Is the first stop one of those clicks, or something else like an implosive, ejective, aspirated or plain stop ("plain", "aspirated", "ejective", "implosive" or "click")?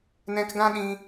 plain